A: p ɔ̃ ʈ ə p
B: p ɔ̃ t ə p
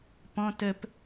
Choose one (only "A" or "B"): B